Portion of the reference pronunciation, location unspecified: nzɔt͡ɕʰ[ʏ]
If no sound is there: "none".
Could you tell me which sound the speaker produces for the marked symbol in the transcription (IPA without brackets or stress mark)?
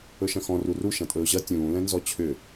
ʏ